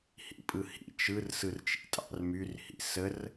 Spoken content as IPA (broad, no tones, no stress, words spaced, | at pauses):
hḭpʼɯhḭ t͡ʃɯr sɯrt͡ʃḭtʼɑ̰rmyr hḭsər